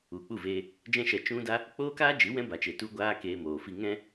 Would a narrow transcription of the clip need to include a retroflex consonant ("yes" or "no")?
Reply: no